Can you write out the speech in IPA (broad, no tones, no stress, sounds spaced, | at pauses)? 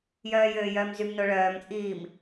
j œː j øː j œː m z y m n o ɭ œː m t͡sʼ iː m